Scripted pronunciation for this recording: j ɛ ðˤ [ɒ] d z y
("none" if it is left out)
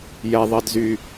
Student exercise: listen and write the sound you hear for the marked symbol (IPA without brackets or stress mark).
ʌ